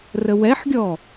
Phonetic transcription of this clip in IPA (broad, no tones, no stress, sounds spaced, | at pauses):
r ə w ɛ ħ ɡʲ ɔ